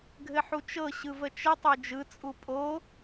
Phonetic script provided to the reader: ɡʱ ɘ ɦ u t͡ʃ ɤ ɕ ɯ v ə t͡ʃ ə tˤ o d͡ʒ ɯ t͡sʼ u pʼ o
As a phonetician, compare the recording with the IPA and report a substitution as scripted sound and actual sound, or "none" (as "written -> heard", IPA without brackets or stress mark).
ɦ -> ħ